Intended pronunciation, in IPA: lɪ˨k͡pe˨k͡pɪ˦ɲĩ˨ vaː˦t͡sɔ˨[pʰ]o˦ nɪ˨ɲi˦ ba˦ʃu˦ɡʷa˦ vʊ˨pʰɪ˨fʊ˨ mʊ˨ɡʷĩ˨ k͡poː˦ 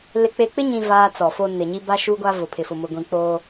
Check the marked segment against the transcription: incorrect: f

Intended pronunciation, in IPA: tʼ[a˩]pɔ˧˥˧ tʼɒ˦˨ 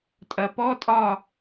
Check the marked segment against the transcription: incorrect: ɐ˩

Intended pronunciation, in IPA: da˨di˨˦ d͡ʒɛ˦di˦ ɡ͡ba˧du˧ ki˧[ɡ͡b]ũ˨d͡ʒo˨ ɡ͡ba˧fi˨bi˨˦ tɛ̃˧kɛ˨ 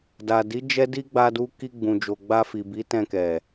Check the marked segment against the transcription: correct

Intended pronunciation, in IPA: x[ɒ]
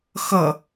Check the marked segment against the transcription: incorrect: ʌ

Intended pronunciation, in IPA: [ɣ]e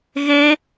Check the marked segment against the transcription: correct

